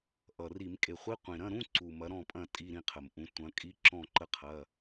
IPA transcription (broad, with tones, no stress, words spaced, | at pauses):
ʔʌ˨˩ri˧˩˧m kʼe˨˩χʷi˧˥˧qʷĩ˨˩ɾɐ̃˧˥˧ ɾũ˧˥˧ǀu˨˩ mɐ˨˥ɾɔ̃˦˨pʼɐ̃˦˨ tʼi˧˥˧ɾĩ˦˨qʰə˨˩mʔũ˨˥ tʷɐ̃˨˥ kʼi˧˥˧ ǁɔ̃˦˨ǃə˦˨ qʰɐ˧˥˧